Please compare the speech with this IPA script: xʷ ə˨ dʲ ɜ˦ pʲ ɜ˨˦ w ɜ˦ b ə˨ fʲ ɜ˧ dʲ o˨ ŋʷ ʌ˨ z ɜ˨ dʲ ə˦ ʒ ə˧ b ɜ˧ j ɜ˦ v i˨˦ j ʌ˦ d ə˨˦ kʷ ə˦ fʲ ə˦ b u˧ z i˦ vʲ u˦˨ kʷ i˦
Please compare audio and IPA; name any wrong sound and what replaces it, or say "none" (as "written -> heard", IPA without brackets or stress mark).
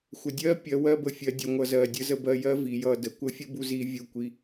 ʒ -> z